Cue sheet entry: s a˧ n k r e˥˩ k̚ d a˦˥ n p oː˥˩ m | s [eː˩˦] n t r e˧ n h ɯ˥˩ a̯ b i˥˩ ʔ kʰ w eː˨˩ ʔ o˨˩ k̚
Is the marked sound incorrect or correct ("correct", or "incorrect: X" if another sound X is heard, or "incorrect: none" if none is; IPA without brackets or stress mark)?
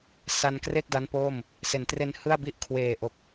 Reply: incorrect: e˩˦